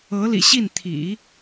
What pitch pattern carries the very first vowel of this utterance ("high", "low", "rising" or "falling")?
rising